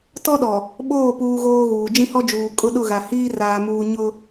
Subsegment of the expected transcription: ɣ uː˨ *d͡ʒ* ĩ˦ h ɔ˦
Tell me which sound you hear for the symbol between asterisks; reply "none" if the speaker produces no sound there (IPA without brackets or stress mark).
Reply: d͡ʒ